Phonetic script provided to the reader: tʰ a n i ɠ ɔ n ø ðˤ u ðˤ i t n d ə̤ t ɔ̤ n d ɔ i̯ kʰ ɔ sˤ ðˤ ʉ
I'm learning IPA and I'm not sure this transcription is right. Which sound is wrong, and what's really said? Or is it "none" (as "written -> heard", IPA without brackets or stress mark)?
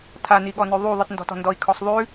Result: ə̤ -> ɔ̤